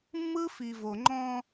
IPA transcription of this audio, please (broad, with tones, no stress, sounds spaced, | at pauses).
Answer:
mː ɯ˦ f i˨ v o˨ ŋ͡ǃ ɔ̃˦